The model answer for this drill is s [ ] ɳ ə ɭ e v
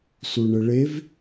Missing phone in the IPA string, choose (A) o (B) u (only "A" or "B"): B